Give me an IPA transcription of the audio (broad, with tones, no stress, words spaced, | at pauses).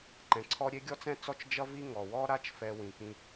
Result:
ǃɛ̃˩ǀʰɔ˥ ɾʲe˥ ɡʲɔ˥t͡sɛ̃˥t͡sɔ˥t͡ʃ d͡ʒʌ˥vi˥ ŋɔ˩wɔ˥ɾa˥t͡ʃ fɛ˥wĩ˩kĩ˥